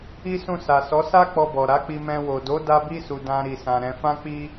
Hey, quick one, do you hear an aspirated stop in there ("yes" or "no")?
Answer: no